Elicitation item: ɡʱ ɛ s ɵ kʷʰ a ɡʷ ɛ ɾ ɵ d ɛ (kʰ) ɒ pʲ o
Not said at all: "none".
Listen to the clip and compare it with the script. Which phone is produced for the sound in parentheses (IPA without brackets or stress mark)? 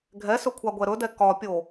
k